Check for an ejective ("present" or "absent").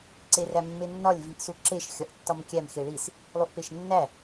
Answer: absent